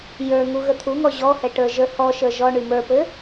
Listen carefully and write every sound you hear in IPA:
j ə˞ ŋ u ɣ ə t̪ʰ u ŋ ɔ ʑ ɔ h ɛ ʈ ə˞ ʒ ə˞ h ɔ ʃ ə˞ ʒ ɔ ɳ y m ə˞ p ɘ

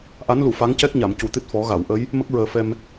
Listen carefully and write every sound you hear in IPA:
ʔ a˧˥ n l u˨˩˨ f a˧˥ ŋ c ɛ˦˥ k̚ ɲ a˨˩˨ m c u˨˩ t̪ ɨ˦˥ t̚ f ɔ˨˩˦ ɣ a˨˩˨ w ʔ ə˧˥ j | m ə˦˥ k̚ ɹ əː˨˩ f ɛ˧ m

